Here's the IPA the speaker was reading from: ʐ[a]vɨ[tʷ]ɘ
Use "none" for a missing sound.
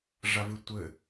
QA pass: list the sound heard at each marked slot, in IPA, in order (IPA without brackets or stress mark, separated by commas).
a, tʷ